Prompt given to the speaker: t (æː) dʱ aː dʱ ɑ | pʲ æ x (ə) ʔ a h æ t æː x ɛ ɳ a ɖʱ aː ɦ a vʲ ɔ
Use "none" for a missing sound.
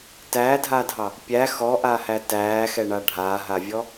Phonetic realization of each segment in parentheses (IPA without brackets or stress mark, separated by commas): æː, ɔ